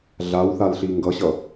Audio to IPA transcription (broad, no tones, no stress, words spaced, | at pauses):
ɮawθalɬi ŋɡʌɕʌ